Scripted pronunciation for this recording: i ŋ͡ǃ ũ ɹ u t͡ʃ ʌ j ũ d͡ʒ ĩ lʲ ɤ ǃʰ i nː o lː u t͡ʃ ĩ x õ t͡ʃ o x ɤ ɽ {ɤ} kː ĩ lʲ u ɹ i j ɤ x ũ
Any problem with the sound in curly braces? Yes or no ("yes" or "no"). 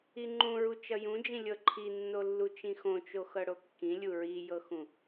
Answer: yes